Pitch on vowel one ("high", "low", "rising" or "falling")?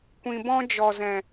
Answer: low